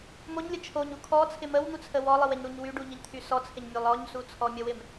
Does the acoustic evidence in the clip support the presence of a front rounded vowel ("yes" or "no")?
yes